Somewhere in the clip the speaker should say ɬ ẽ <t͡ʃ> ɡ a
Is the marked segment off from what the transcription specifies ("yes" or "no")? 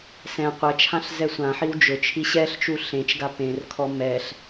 no